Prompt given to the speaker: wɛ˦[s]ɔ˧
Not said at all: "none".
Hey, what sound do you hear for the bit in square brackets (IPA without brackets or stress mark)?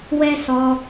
s